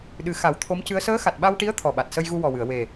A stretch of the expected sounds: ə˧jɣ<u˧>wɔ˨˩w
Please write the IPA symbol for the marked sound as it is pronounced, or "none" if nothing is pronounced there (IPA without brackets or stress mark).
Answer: u˧